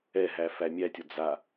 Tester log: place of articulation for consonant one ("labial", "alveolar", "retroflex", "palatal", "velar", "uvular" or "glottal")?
glottal